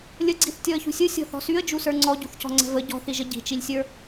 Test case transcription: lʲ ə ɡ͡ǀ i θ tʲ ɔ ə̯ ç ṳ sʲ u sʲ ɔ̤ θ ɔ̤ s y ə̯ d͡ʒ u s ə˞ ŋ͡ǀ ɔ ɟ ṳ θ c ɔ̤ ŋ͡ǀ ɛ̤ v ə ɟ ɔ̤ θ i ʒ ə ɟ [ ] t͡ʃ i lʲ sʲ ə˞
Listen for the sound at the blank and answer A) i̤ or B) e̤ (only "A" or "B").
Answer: A